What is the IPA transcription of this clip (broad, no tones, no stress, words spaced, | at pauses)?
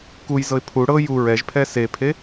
kujzɤɪ̯ pʰu ɽɤ ju ɹɛʒpʰɛ sepʰe